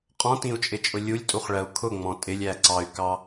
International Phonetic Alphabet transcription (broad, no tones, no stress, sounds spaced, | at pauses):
qʼ ɔ̃ t ĩ u̯ t͡ʃʼ ɪ t͡ʃʼ ʊ lʲ u lʲ tʼ u χ ɭ ɜ u̯ kʰ ʊ ŋ͡m ɔ̃ tʼ ɪ lʲ æ ǀ ɑ y̯ k ɑ